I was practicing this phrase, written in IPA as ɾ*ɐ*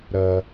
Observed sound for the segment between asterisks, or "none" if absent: ɐ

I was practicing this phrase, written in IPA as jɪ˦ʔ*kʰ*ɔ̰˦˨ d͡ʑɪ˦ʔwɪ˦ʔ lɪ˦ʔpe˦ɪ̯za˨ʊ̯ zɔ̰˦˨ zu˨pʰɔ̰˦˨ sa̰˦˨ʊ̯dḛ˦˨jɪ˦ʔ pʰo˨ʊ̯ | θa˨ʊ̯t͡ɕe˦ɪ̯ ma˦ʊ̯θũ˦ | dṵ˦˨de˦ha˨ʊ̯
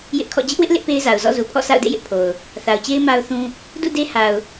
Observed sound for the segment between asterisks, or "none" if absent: kʰ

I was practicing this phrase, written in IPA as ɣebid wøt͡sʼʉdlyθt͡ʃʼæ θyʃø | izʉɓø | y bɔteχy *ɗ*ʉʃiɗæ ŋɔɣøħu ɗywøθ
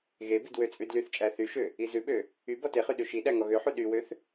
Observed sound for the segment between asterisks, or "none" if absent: ɗ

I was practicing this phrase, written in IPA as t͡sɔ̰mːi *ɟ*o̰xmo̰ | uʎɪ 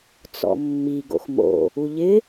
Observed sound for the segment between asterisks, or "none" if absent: ɡ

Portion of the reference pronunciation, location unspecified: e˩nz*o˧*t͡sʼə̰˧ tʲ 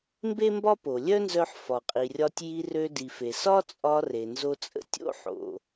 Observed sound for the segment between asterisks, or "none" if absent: o˧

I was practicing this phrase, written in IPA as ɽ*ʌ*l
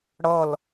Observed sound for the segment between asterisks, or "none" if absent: ʌ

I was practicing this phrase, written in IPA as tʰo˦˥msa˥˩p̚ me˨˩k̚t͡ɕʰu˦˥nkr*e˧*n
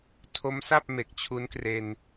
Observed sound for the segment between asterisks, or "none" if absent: e˧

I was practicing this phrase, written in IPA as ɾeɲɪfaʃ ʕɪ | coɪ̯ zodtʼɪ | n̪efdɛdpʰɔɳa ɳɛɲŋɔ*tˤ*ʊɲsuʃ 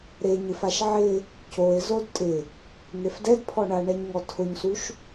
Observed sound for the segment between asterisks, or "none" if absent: tʰ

